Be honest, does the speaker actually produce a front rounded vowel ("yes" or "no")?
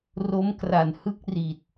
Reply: no